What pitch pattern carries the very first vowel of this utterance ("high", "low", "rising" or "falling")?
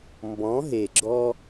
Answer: rising